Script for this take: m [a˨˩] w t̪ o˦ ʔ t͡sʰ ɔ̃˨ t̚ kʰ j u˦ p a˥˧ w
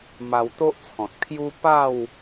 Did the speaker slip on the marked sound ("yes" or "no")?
yes